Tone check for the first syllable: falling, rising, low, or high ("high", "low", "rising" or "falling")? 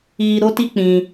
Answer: high